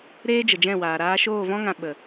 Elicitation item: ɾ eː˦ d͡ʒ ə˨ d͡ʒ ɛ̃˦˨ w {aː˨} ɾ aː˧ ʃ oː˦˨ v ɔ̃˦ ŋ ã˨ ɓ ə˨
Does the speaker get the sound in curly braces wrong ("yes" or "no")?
no